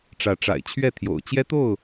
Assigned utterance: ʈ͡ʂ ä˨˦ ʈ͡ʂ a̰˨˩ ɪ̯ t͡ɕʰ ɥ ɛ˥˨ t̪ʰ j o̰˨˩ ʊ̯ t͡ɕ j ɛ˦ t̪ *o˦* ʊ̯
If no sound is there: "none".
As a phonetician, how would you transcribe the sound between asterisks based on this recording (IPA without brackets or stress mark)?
o˥˨